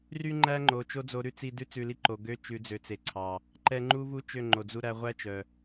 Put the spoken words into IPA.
r y˦ ŋ͡ǃ æ˦ ŋ͡ǃ o˨ t͡ʃ o˦ d͡z o˧ ɾ ʉ˦ t͡s i˧ d ʉ˦ t͡s ʉ˧ l i˦ ǃ o˨ ɡ ø˦ t͡ʃ ʉ˨˦ d͡z ø˨ t͡s e˨ ǀʰ ɑ˨ | ǃ ɛ˧ ŋ͡ǃ u˦ v u˦ t͡ʃ ø˦˨ ŋ͡ǃ o˨ d͡z u˧ ɾ æ˧ ʁʷ æ˦ t͡ʃ œ˨

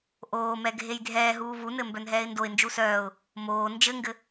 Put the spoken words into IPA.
ʔ oː m ɛ ɡʱ e j dʱ ɛː ɦ uː v u n ɘ m b œ n ɦ ɛː ɪ̯ n d o ɪ̯ n d͡ʒ u s œː ʊ̯ | m oː n d͡ʒ ɘ ŋ ɡ ɘ

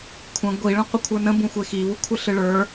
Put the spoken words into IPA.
kʷʰ ə̃ ɡʷ i ɭ ə̃ qʷ ə kʷʰ ə˞ n ə̃ b ũ xʷ e x i β u kʷʰ ɨ ɬ ɨ ɭ ə˞

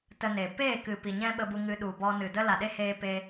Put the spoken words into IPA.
t ə˧ n e˨ p eː˦˨ k ɨ˨ p i˨ ɲ ɛ̃˦ ɓ ə˧ b u˧ ŋ ɨ˧ ɗ u˨ b ɔ˧ n ɨ˨ d ə˦ l a˨ ɗ e˦ h eː˧ p e˧

